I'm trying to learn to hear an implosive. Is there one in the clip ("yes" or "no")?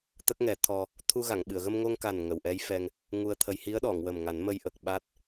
yes